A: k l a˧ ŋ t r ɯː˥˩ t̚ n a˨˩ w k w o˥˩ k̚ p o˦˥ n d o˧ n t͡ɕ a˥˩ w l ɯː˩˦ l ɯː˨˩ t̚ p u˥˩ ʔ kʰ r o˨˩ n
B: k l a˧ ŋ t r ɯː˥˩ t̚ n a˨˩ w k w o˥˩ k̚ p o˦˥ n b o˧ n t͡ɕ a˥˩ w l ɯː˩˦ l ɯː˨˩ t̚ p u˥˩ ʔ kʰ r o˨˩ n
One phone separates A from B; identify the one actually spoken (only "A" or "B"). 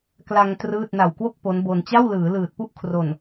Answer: B